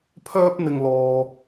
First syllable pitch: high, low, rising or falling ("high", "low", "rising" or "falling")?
high